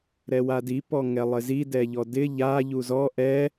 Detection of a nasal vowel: absent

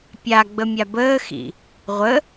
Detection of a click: absent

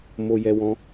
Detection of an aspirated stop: absent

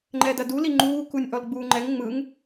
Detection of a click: present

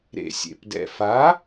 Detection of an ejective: absent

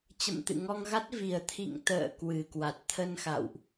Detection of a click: absent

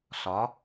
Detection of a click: absent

